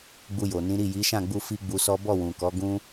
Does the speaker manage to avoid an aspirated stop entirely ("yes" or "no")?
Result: yes